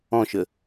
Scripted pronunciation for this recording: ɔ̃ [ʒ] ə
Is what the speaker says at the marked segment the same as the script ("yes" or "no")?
no